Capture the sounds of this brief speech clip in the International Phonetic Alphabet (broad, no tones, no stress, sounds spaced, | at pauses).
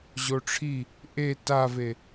ʑ o ʈ͡ʂʰ i | ʔ e t a v e